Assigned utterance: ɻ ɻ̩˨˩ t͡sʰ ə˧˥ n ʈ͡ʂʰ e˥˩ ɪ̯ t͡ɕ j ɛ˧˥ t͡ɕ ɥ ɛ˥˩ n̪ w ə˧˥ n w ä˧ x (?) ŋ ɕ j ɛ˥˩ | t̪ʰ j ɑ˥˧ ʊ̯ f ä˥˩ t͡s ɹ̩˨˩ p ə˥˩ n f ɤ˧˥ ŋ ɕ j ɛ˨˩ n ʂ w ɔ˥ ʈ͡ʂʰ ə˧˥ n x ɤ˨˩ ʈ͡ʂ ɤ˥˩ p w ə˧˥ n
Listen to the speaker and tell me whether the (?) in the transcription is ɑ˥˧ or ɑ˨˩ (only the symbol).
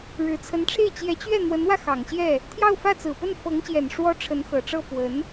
ɑ˨˩